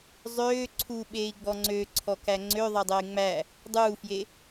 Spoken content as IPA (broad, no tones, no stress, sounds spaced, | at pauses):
zˤ øː ǀʰ u ɓ eː i̯ ɡ͡b ɔ ŋ͡ǀ ø ǀʰ ɔ k æ ŋ͡ǀ ø ðˤ e dˤ eː ŋ͡m æ | dˤ uː f j e